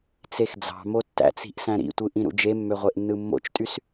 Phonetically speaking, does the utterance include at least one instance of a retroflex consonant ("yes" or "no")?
no